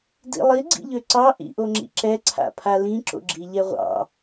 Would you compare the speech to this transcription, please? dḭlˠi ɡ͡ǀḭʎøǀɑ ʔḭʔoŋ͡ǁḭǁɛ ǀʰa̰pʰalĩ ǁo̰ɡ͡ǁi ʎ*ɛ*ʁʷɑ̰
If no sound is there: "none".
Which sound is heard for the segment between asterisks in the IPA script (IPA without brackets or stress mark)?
ɛ